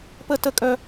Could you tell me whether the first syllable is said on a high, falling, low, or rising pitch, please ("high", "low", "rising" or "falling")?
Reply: high